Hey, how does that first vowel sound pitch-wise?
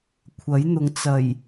rising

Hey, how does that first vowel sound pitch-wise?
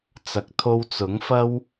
low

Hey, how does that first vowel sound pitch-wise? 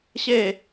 falling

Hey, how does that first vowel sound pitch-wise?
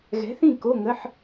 rising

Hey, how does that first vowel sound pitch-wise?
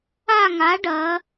falling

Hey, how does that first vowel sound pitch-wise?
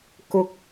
high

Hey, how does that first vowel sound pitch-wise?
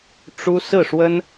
high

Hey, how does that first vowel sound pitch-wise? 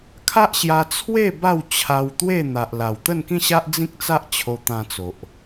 high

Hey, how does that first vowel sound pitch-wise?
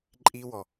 high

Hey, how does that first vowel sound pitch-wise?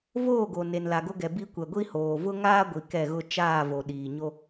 falling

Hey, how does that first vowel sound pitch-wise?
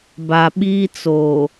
low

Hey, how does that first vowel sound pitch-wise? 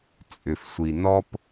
low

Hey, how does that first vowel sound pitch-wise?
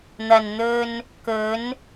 low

